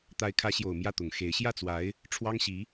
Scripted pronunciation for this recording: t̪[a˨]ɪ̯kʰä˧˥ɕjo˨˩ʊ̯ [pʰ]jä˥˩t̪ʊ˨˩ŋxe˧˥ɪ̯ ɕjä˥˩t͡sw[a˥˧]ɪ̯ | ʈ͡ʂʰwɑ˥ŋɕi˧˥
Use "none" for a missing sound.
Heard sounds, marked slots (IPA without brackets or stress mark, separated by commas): a˧˥, m, a˧˥